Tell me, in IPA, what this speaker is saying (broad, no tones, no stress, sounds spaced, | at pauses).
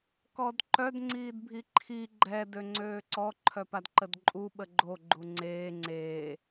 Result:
k ɔ d ǃ œ d ŋ͡ǀ iː d bʱ i ǃʰ i ɡ͡ǃ ɛ d ø ŋ͡ǀ øː ǀ ɔ ǃʰ œ p a d ǃ ə d ǃʼ u ɓ ə ɡ͡ǃ o ɡ͡ǃ u ŋ͡ǀ eː ŋ͡ǀ eː